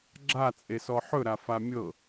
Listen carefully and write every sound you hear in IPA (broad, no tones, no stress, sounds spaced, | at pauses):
ɡ͡ǁ a t͡sʼ e s ɔ ħ ɵ ɾ a f a mʲ ɤ